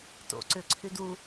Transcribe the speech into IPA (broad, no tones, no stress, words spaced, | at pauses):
to̰ ǀʏǀʰyd u